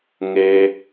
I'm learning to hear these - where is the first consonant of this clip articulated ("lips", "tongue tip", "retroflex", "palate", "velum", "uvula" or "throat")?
velum